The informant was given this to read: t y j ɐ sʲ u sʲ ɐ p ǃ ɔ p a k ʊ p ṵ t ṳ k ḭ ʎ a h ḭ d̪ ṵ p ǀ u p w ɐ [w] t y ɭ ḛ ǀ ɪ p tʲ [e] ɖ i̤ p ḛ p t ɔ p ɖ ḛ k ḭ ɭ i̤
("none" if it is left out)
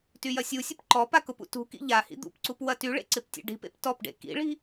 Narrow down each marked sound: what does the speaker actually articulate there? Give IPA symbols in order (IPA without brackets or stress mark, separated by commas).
none, ḛ